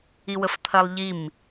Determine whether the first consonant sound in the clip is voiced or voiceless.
voiced